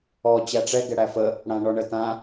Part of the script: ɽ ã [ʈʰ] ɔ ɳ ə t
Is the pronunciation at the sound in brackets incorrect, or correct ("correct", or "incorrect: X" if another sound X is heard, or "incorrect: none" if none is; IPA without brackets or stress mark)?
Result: incorrect: ɳ